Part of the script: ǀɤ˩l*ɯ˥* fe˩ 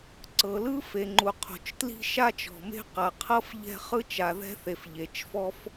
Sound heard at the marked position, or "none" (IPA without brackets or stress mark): ɯ˥